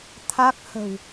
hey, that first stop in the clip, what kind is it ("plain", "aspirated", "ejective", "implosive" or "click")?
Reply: aspirated